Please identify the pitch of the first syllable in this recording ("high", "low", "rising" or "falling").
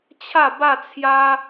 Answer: falling